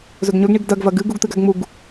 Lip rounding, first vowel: rounded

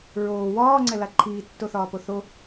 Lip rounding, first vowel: rounded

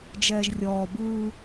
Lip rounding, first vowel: unrounded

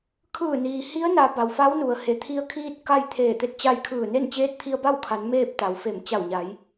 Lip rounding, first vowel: unrounded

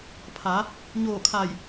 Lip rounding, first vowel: unrounded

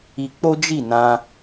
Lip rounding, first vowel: unrounded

